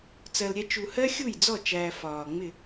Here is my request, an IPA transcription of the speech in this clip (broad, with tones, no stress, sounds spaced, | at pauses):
t͡s ɜ˧ l ɾʲ ɛ˦ t͡ʃ u˧ h ɜ˦ xʲ u˦˨ j d͡z ɔ˦˨ t͡ʃ æː˧ f ɒː˨ ŋ͡m ɪ˦˨